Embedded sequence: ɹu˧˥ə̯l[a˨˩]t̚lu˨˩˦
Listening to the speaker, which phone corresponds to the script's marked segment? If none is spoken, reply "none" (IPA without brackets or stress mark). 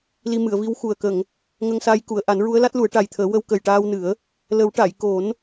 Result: a˦˥